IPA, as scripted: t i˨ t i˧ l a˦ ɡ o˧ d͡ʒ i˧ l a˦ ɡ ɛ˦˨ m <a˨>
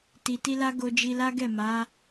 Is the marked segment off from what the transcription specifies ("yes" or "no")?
yes